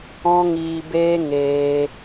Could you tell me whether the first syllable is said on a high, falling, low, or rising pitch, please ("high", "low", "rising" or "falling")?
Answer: high